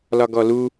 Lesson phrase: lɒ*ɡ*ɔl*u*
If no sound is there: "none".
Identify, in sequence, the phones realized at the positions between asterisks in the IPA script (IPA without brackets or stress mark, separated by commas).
ɡ, u